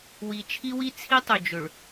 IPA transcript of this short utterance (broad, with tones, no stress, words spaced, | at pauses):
wi˨t͡ʃʰi˦wi˦ t͡sʰi˦tˤɵ˨d͡ʒɵ˨ɭ